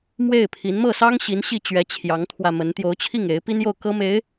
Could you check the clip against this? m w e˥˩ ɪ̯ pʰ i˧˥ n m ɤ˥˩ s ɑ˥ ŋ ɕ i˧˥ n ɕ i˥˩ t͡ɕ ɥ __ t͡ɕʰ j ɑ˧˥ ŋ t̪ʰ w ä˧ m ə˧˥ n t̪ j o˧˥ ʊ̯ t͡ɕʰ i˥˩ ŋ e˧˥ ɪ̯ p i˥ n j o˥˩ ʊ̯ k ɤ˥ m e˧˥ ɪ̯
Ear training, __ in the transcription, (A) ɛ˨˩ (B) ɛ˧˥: B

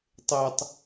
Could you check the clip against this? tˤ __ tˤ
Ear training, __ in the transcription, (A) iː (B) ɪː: B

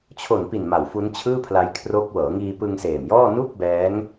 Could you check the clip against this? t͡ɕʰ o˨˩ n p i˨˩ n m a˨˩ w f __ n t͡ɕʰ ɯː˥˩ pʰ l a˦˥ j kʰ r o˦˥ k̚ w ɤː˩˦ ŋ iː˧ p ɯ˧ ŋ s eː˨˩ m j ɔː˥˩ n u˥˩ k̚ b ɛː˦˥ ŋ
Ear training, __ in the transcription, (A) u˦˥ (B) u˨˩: A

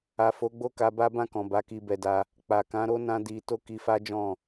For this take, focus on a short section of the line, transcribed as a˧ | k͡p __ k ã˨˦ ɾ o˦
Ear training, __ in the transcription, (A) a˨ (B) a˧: A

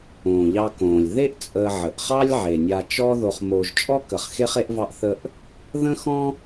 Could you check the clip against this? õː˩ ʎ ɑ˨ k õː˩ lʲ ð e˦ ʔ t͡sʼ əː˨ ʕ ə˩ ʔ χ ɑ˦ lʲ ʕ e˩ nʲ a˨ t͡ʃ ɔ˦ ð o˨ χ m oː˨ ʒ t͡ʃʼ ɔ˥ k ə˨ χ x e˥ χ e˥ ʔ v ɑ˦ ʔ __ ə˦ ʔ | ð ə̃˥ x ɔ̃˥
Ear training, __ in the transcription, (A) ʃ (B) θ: B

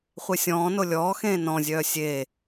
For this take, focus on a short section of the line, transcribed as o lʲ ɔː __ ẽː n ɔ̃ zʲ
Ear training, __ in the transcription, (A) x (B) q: A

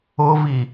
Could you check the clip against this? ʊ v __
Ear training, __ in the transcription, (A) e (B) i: B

